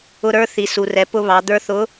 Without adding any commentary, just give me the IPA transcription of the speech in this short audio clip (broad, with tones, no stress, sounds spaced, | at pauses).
ʊ˧ ɾ ə˞˧˥ θ i˩ s u˩ r ɛ˩˧ p ʊ˧ β ɑ˩˧ d̪ ə˞˧ θ ʊ˧˥